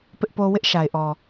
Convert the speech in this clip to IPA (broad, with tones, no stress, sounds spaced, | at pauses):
p ɪ˦ ʔ p o˦ w ɪ˦ ʔ ʃ a˨ ɪ̯ ʔ ɔ˨